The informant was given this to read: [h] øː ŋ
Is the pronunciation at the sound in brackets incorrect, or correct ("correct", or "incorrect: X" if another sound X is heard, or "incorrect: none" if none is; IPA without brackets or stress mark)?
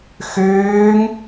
incorrect: x